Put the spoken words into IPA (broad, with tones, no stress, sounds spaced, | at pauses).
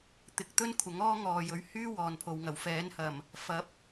t̪ ɪ˧ k̚ t̪ ɵ˥ n kʷʰ ɐ˨˥ ŋ ɔː˥ ŋ ɔː˨ j ɵ˨˥ ɥ h yː˥ w ɔː˨ n pʰ o˨ w ŋ ɐ˨˩ w f ɛː˨˥ n h ɐ˨˩ m | f ɐ˨˥ p̚